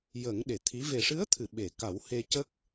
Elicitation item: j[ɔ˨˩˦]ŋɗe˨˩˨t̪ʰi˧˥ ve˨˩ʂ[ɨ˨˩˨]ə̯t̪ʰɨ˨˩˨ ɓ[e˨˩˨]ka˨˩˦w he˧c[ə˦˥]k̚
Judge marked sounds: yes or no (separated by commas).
no, no, yes, yes